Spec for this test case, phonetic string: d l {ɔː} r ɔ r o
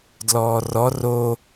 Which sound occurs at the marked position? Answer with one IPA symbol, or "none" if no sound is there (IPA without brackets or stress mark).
ɔː